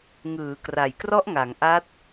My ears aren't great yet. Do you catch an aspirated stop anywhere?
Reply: no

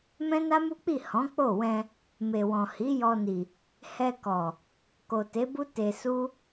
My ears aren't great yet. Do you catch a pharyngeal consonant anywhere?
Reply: no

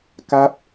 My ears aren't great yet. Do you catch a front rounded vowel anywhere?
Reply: no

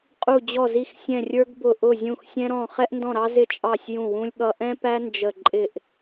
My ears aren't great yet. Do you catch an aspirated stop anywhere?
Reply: no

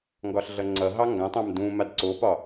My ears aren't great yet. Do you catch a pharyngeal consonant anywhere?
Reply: no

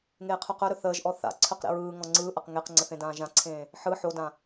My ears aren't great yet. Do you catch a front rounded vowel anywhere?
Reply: yes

